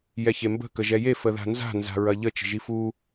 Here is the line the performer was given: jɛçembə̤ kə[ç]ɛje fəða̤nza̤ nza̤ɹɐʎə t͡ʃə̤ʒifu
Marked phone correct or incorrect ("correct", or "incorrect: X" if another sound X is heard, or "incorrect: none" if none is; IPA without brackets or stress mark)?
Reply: incorrect: ʒ